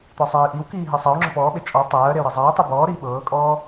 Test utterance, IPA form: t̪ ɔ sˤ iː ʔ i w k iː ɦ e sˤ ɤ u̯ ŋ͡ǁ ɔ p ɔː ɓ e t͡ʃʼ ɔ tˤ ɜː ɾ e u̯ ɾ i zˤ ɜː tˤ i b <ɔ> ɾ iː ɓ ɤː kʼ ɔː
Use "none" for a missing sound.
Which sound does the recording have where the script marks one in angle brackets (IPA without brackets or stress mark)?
ɔː